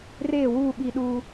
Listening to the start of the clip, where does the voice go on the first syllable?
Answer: falling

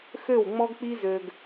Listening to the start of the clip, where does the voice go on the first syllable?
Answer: falling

